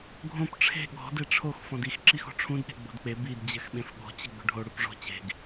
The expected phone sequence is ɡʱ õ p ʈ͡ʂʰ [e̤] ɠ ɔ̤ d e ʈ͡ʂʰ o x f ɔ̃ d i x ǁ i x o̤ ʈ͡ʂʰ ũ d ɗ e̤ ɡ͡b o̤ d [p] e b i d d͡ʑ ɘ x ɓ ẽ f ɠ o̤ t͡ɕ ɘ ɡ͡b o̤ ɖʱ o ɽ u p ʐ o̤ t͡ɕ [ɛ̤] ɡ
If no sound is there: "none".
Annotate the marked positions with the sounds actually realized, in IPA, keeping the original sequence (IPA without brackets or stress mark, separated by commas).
e̤, k͡p, e̤